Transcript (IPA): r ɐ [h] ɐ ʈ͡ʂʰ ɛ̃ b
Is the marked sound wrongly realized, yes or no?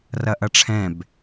yes